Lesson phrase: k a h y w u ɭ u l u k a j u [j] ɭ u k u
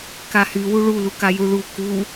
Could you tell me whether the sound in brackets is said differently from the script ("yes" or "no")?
yes